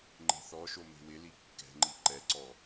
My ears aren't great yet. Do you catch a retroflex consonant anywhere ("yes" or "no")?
no